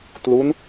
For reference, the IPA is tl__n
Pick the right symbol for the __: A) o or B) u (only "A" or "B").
B